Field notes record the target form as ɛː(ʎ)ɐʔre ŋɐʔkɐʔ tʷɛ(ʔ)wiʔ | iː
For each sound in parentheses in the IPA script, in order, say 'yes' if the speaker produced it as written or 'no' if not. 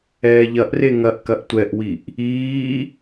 yes, yes

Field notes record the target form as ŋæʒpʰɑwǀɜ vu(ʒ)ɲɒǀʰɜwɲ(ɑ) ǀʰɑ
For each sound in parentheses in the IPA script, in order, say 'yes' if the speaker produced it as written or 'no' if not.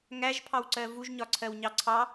yes, yes

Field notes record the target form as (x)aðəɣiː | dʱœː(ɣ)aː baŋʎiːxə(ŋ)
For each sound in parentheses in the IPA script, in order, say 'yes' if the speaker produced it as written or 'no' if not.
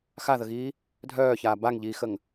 yes, no, yes

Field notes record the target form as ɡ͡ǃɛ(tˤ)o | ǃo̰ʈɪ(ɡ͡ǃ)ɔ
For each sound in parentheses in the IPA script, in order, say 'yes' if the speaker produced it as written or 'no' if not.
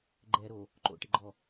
no, yes

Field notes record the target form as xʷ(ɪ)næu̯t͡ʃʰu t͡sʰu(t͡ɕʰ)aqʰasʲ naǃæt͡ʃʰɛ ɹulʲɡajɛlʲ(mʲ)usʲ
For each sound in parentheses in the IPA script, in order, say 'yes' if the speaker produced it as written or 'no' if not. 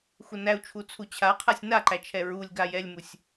no, yes, no

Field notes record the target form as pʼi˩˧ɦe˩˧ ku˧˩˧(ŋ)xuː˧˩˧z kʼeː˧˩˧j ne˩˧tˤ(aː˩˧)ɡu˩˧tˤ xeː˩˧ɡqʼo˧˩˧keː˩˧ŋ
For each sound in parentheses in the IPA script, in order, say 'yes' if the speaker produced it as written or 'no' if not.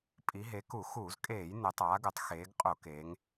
no, yes

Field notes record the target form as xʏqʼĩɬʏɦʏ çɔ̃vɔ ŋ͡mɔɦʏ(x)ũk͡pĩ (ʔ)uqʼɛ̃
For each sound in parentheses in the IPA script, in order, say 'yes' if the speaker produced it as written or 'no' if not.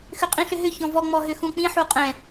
yes, no

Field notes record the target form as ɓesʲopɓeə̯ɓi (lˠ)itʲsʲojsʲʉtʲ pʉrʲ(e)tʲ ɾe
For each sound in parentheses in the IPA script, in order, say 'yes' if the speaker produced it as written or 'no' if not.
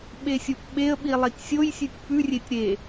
yes, yes

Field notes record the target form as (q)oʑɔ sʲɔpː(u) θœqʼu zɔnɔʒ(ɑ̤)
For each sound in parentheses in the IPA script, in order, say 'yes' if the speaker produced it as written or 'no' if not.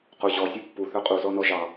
yes, yes, no

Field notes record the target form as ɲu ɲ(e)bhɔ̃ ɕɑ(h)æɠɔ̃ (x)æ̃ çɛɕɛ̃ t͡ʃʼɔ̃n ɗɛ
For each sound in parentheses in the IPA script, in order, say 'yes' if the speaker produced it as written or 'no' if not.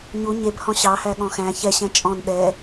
yes, yes, yes

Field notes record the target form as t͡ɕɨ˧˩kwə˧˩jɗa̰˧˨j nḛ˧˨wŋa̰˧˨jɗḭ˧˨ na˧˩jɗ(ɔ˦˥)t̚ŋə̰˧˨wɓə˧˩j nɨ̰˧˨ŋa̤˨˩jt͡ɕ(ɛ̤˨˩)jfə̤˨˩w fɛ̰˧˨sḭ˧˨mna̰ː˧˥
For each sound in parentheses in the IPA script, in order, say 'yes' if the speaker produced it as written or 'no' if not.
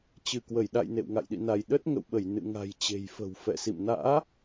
no, no

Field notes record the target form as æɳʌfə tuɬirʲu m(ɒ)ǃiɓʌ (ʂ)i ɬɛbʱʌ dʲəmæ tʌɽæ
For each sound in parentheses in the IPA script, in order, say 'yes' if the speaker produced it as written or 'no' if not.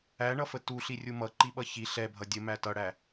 no, no

